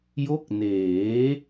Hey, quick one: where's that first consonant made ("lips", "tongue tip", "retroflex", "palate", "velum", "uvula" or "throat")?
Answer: palate